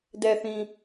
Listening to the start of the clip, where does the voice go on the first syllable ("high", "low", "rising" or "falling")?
low